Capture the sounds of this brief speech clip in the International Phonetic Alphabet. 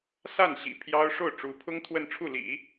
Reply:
s a˥˩ n ɕ ḭ˨˩ pʰ j ɑ˥ ʊ̯ ʂ o˥˩ ʊ̯ ʈ͡ʂ u˧˥ pʰ ʊ˥ ŋ t̪ʰ w ə˥˧ n ʈ͡ʂʰ u˥˩ l ḭ˨˩˦

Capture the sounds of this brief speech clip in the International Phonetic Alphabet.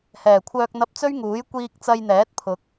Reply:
h ɛː˨˩ kʷʰ œː˧ k̚ n̪ ɐ˧ p̚ t͡s ɵ˥ ɥ ŋ uː˨˥ j kʷ iː˧ k̚ t͡s ɐ˧ j n̪ ɛː˨˥ t̚ pʰ ʊ˨˥ k̚

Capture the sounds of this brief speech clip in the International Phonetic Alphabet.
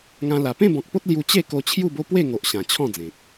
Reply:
ŋ ã˧ l a˨˩ p ẽ˥˧ b ɔ̃˨ k̚ p o˦ t̚ l j u˧ t͡ɕ e˥˧ k o˧ t͡ɕʰ j u˥˧ b o˦ p w e˥˧ ŋ o˨ ʔ ɕ ã˨˩ t͡ɕʰ ɔ̃˥˧ d͡z ẽ˨ t̚

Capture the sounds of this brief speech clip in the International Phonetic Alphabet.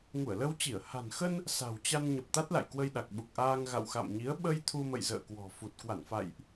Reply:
ŋ u˧˩ ə̯ l ə˧ w t͡ɕ i˧˩ ə̯ h a̤˨˩ n x ə˧ n | s a̤˨˩ w t͡ɕ a˧ n ɲ ə˨˩ p̚ t̪ a˦˥ t̚ l a̰˧˨ j k w ə˧ j ɗ a˨˩ k̚ ɓ u˨˩ k̚ ʔ aː˧ ŋ ɣ a̰˧˨ w x a̰˧˨ m ɲ i˨˦ ə̯ ɓ ə˧ j t̪ʰ u˧ m ə̰˧˨ j z ə̰ː˧˨ k w ɔ̤˨˩ f u˨˩ t̚ k w a˧˩ n f a̰˧˨ j ʔ

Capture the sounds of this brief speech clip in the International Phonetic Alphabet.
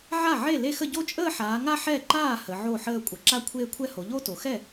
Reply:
ʕ a˥˩ ʕ e˥˩ l e˥˧ x ə˥˧ ɟ o˥˧ t͡ʃʼ əː˥˧ ħ aː˩˧ ŋ a˥˧ ħ ɛ˥˩ ǃ aː˥˩ h ə˩˧ ʕ o˥˩ ħ əː˥˧ kʷʼ ʌ˩˧ ǁ a˥˩ kʷʰ eː˥˧ kʷʰ ɛ˥˧ h o˩˧ ʎ o˥˧ t o˩˧ x ɛ˥˩

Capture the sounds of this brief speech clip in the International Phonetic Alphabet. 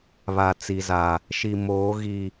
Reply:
β a˨ t͡s i˨ z a˨ | ʃ i˨ m oː˨˦ ɣ i˨

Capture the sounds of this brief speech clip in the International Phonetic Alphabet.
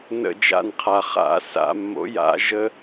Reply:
n ə̰˦˨ d͡ʒ a̰˦˨ n qʰ a˨˩ χ a̰˨˥ s a̰˧˩˧ mː o̰˨˥ j a̰˨˥ ʒ ə˦

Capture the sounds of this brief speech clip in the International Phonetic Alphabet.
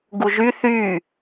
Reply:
ɡ u ʒ y θ y

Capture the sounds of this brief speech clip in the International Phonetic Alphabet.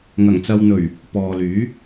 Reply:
ŋ ɐ˨˩ ŋ t͡s ɐ˨ w n̪ ɵ˨˩ ɥ | p ɔː˨ l yː˨˥

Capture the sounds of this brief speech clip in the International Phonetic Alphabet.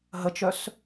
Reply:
ɦ ə t͡ʃ œ s

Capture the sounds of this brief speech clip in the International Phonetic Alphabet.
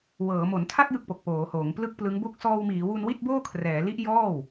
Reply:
w ɤː˩˦ m o˩˦ n tʰ a˥˩ k̚ j ɯ˥˩ k̚ p o˨˩ k̚ p oː˩˦ h oː˩˦ ŋ p l ɯ˥˩ k̚ p l ɯ˦˥ ŋ b o˥˩ k̚ s ɔː˧ w m iː˩˦ w u˧ n w i˥˩ t̚ b oː˥˩ kʰ r ɛː˩˦ l i˦˥ ʔ j ɔː˥˩ w

